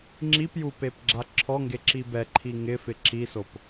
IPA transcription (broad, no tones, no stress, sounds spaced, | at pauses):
ŋ͡ǁ i p j u p e p ɡ͡ǁ a ǁʰ ɔ ŋ ɡ e ǁ i b ɛ ǃʰ i ŋ ɪ f ɪ ǁ i s o p